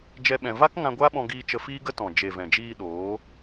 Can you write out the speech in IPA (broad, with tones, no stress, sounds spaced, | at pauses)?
d͡ʒ ɛ˦ ɓ ɛ̃˧ v a˦ k ŋ ã˧ ɡʷ a˦ ɓ ɔ̃˧ ɡ iː˧ t͡ʃ ə˧ f iː˦ ɡ ə˦ t ɔ̃˨ d͡ʒ e˨ v ɛ̃˨ d͡ʒ iː˧ ɗ oː˨˦